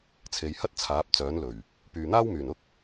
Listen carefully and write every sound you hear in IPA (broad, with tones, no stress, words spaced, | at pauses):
t͡sʰe˨˧jhɐ˥t̚ t͡sʰaː˨˥p̚t͡sœː˨˥nlɵ˨˩ɥ | pyː˨n̪aː˥wmyː˨˩nʊ˥k̚